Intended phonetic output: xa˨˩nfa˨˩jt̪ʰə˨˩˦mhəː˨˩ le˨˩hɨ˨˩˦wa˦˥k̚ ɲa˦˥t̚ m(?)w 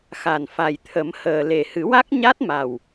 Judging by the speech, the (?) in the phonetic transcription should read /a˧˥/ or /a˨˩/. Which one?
a˨˩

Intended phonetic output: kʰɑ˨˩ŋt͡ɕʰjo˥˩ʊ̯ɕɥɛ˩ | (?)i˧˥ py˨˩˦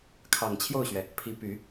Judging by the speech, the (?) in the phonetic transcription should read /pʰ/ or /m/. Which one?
pʰ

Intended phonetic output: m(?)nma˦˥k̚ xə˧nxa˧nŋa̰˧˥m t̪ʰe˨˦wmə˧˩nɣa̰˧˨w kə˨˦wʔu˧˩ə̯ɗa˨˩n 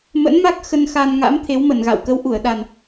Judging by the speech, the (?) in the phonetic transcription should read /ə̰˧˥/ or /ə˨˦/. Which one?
ə̰˧˥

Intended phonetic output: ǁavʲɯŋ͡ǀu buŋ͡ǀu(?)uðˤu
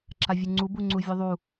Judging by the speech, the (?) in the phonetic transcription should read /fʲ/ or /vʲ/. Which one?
vʲ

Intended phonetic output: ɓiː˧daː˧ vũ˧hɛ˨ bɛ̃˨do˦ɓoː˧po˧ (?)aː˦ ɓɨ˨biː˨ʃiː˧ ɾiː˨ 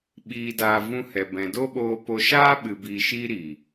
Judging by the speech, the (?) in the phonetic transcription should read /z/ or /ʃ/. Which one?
ʃ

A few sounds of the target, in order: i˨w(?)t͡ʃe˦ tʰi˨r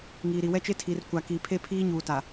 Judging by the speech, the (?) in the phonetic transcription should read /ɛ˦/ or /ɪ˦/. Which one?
ɛ˦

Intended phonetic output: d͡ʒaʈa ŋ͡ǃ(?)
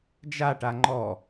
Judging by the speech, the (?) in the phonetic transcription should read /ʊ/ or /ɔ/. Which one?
ɔ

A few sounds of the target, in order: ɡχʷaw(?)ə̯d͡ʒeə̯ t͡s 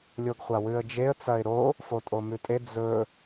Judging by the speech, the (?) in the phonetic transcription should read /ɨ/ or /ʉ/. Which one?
ʉ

